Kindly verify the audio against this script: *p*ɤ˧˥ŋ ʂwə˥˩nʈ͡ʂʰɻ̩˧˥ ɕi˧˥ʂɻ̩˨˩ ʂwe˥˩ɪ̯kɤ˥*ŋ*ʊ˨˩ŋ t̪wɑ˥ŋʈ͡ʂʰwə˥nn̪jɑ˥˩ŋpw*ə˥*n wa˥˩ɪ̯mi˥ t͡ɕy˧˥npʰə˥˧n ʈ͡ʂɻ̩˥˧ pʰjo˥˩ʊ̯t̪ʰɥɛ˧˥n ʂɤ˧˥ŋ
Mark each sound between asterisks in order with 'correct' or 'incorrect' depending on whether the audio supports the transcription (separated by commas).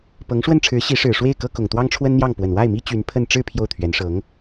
correct, incorrect, incorrect